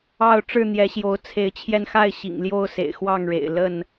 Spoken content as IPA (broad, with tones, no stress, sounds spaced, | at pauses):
ɑ˥˨ ʊ̯ ʈ͡ʂ ɻ̩˥˨ n̪ j ɛ˨˦ ɕ j o˨˦ ʊ̯ t͡sʰ e˨˦ ɪ̯ t͡ɕʰ j ɛ˧ n x a˥˨ ɪ̯ ɕ ḭ˨˩ ŋ l j o˥˨ ʊ̯ s ḛ˨˩ ɪ̯ x w ɑ˥˨ ŋ ɻ ḛ˨˩ ɪ̯ l ə˥˨ n